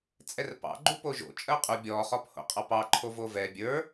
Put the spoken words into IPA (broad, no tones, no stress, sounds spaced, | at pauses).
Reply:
t͡sʼ ɛ r p ɑ̰ ɡ͡ǃ u p o ʒ o̰ t͡ʃʼ ɜ qʼ u bʲ ɔ χ ɔ p h o̰ qʼ ɑ p ɑ ǃʰ o v o v ɛ bʲ ə˞